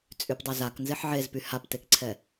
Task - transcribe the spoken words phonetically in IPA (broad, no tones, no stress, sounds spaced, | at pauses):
t͡sʼ y p dˤ ɛ z a k n z e ħ ʕ e z p y h a p t e k ǀʰ ɛ